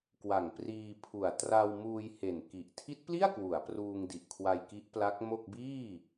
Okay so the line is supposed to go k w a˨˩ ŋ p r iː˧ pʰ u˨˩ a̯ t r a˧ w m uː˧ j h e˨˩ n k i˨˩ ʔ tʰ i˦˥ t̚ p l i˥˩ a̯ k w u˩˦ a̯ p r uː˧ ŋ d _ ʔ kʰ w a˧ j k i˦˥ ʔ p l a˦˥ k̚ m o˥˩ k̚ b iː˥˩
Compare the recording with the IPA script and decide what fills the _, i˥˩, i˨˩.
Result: i˨˩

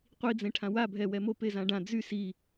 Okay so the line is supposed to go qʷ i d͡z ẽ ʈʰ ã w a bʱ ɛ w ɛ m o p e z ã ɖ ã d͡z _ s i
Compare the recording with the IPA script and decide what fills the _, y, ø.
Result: y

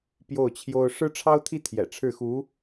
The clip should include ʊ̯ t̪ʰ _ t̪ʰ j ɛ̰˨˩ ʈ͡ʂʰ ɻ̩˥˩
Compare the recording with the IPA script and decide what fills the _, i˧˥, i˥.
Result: i˥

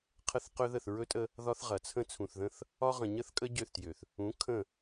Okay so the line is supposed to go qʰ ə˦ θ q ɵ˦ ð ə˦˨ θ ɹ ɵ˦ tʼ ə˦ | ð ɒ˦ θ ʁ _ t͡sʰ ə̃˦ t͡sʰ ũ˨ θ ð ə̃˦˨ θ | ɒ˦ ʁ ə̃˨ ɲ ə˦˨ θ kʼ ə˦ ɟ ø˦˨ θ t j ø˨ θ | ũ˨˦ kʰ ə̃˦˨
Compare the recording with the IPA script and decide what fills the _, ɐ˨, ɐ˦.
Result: ɐ˨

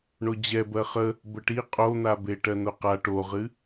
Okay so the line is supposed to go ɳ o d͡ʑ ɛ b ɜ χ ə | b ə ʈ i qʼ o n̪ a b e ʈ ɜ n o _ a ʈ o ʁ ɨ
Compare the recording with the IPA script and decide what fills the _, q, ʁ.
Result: q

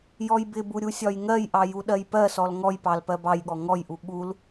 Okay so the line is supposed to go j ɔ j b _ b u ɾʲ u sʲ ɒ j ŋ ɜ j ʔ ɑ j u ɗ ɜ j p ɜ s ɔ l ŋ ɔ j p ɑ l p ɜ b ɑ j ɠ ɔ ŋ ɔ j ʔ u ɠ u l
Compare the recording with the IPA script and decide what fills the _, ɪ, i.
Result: ɪ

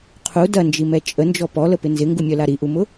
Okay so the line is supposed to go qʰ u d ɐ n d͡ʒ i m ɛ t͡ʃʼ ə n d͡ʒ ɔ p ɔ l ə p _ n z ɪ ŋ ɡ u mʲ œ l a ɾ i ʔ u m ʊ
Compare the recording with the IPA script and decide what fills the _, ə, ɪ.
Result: ɪ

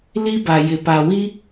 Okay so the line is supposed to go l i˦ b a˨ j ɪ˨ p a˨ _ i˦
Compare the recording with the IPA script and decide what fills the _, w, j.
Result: w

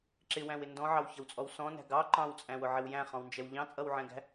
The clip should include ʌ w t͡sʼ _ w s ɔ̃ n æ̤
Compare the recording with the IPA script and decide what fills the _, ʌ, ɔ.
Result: ɔ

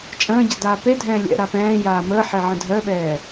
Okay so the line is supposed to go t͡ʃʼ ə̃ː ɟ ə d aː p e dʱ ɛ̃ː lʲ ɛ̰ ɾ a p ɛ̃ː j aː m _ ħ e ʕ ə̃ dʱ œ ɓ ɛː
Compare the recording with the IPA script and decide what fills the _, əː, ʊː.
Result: əː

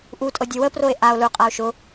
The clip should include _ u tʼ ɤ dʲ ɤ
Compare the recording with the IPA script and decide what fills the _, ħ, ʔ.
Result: ʔ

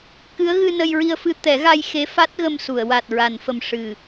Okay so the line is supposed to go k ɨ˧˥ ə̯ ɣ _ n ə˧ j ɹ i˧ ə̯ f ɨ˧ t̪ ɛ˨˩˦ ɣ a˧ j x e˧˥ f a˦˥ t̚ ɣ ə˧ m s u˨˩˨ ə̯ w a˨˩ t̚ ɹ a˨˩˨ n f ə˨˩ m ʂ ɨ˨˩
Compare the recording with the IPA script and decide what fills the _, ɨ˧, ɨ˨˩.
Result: ɨ˧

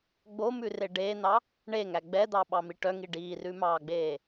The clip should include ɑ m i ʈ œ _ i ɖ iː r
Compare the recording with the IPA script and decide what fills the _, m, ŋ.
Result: ŋ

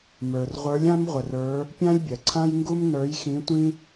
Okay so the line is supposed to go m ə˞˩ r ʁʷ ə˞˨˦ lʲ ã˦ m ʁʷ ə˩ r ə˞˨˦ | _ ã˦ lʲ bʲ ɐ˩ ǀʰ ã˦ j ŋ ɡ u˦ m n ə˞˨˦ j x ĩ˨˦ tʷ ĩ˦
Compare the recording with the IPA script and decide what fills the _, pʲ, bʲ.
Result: pʲ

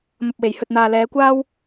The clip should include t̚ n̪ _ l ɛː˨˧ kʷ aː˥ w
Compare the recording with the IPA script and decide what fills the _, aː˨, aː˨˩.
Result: aː˨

